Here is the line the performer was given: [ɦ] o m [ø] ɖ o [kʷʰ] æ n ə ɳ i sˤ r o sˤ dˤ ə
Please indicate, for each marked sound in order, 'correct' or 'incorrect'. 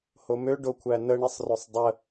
incorrect: h, correct, correct

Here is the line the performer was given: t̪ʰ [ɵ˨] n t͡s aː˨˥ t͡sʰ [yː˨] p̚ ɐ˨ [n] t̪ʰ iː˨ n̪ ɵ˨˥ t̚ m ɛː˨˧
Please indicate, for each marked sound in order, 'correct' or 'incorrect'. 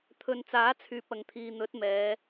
correct, correct, incorrect: ŋ

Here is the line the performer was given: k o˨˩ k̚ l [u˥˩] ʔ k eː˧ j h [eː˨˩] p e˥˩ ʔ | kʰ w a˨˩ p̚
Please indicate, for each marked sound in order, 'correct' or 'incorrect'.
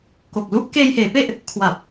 correct, incorrect: eː˩˦

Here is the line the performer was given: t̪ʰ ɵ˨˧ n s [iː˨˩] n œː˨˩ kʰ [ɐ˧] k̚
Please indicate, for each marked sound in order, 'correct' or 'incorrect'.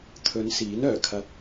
incorrect: iː˨˥, correct

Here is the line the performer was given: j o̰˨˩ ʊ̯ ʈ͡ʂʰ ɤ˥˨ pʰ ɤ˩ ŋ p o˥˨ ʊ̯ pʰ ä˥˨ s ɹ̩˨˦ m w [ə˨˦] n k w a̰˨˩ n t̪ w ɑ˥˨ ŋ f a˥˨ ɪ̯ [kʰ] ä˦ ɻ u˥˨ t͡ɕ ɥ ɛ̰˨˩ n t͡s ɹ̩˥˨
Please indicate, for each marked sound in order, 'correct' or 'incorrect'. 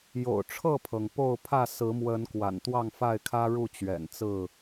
correct, correct

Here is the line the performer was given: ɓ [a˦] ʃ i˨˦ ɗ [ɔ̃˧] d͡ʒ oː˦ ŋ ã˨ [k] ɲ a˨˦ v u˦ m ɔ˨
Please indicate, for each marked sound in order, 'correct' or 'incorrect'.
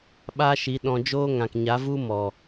correct, correct, correct

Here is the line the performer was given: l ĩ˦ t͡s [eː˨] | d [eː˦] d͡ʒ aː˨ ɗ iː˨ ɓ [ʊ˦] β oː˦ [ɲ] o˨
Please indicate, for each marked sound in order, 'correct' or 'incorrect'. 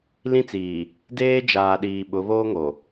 incorrect: iː˨, correct, incorrect: ʊ˨˦, incorrect: ŋ

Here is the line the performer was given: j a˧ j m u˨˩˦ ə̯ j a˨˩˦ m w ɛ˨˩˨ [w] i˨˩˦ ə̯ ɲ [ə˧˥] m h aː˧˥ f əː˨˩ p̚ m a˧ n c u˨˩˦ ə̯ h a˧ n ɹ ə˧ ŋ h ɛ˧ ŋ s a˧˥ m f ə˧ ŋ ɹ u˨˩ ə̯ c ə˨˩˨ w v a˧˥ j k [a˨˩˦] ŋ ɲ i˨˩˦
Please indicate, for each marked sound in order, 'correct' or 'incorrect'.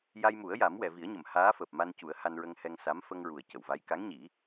incorrect: v, incorrect: ə˨˩˨, incorrect: a˧˥

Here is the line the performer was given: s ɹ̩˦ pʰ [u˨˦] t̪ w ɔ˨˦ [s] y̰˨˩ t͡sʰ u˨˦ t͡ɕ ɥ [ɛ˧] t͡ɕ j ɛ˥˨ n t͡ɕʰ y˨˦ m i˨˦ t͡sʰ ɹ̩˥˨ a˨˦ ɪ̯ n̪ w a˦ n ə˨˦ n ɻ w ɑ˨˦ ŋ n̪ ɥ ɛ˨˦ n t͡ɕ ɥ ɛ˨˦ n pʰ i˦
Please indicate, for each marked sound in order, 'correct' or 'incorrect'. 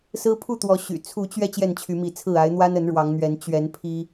incorrect: u˥˨, incorrect: ɕ, correct

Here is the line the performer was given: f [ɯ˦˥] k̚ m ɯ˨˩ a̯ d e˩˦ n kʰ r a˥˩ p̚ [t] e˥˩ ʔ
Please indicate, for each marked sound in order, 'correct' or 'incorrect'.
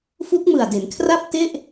incorrect: u˦˥, correct

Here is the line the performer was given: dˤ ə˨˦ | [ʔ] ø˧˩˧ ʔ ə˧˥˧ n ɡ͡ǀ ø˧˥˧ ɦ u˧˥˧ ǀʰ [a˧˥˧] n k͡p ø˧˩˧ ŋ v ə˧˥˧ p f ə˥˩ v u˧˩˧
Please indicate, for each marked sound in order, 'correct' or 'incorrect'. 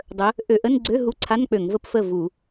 correct, correct

